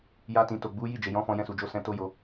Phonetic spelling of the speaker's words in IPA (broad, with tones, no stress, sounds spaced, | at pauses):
j a˧ t ĩ˨ t o˨ ɡ͡b u˨˦ j i˦˨ d͡ʒ e˨ j ɔ̃˨˦ f ɔ̃˧ j ɛ̃˧ s u˨ d͡ʒ o˧ s ɛ̃˧ t o˦ j o˧